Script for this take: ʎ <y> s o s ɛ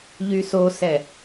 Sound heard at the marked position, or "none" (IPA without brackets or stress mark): y